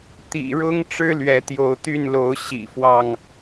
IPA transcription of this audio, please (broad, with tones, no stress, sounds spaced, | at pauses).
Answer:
t̪ ḭ˨˩ ɻ ʊ˦ ŋ ʈ͡ʂ ɻ̩˦ l ɥ ɛ˨˦ t̪ j o˨˦ ʊ̯ t̪ y˥˨ n l o˨˦ ʊ̯ ɕ ḭ˨˩ f w ɑ˥˨ ŋ